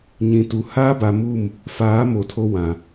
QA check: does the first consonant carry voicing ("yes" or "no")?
yes